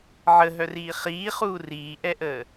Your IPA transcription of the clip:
ʕ ə ɦ œ r iː χ iː χ uː r iː ʔ ɛ ʔ əː

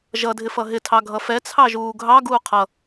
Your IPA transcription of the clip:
ʒ ʌ dʱ ɪ f ʌ ɦ ɪ tʰ ɑ ɡʱ ʌ f ɛ t͡sʰ ɑ ʒ uː ɡʱ ɑ ɡ uː qʰ ʌ

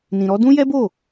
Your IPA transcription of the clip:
n ĩ˧ ɾ ɔ˦ d ũ˦ j ɛ˦ b o˦˨

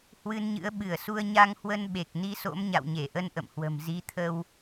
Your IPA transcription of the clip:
h w ɨ˧ n ɲ ɨ̰˧˥ ə̯ ɓ ɨ˧˩ ə̯ s u˧ ə̯ ɲ a˧ ŋ h w ə˧ n ɓ e˨˩ k̚ n i˧ s o̰˧˥ m ɲ a̰˧˨ w ɲ e˧˩ ʔ ə˧ n ʔ ə̰˧˨ m h w ə̤˨˩ m z i˨˦ t̪ʰ ə˧ w

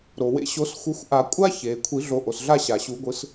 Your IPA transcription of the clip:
ɾ o˩ w ḛ˨˦ ɕ o˨˩˦ s xʷ ɯ˨˦ xʷ ʔ a˨˩˦ kʷʼ a˦˥ ç e˩ kʷʰ i˨˩˦ ɮ o˨˩˦ ʔ o˩ s ɮ a˥˧ ɕ a˩ ɕ u˨˩˦ ɡʷ ɯ˨˦ s

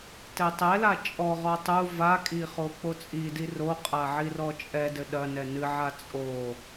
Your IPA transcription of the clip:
t ɛ tˤ ɛ l a t͡ʃʼ ɔ ʁ ɔ tˤ u v a kʼ i χ o k͡p o t͡sʼ i d i r o qʼ a ʕ i r ɔ t͡ʃʼ ɛ d ɘ ɗ ɐ n ɛ n ɨ ʕ a t͡sʼ o

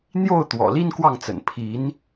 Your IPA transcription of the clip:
n̪ j o˥˩ ʊ̯ t̪ w ɔ̰˨˩ l i˥ n k w ɑ˥˩ ŋ t͡s ə̰˨˩ n pʰ i˧˥ n

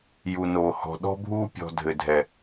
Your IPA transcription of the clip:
j u˦ n oː˦ h ɔ̤˦ ɗ ɔ̤˦ bʱ uː˦ pʲ ɔ̤˦ dʱ ɘ˦ dʱ ɛ˦

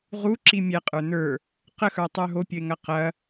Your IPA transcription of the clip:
ʁ u ǁ i mʲ ɛ qʼ ə˞ n ə˞ | q ə x ə˞ tˤ ə˞ ɦ o pʲ ə ɪ̯ ŋ ɐ q ɐ

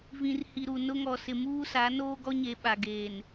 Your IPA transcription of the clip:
v ĩ˨ r h i˨ ɾ u˨ n ʊ˦ ŋ ɔ˨ s ɪ˨ m uː˦ s a˨˦ n oː˦ ɡ ɔ˦ ɲ e˨ ɓ a˨ ɡ eː˨ n

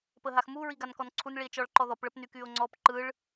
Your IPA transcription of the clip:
p ə ɦ a x m u ɹ i ɡ a n k ɔ n ǀʰ u n ɭ i e̯ t͡ʃ ɔ ɭ ǃ ɔ ð ɔ p ɭ ə p n y k y o̯ ŋ͡ǀ ɔ p ǃ ɯ ɭ

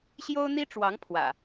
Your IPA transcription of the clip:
ɕ j o˦ ʊ̯ n̪ i˦ ʈ͡ʂ w ɑ˨˦ ŋ pʰ w ä̰˨˩

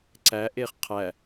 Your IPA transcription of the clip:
ǀ æ ʔ e χ qʰ æ

